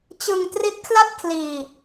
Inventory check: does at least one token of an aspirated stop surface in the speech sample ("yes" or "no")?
yes